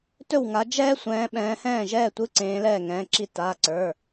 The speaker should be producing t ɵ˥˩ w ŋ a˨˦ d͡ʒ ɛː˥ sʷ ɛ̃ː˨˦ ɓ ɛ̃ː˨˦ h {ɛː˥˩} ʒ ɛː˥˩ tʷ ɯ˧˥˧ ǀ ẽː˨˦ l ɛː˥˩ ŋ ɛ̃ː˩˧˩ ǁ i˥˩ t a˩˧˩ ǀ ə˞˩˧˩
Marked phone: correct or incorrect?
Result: incorrect